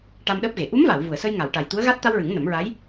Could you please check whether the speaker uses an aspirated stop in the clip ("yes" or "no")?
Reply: no